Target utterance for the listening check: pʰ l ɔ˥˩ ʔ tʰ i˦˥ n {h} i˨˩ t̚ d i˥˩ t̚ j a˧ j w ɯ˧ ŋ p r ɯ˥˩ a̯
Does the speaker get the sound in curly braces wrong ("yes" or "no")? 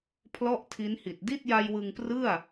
no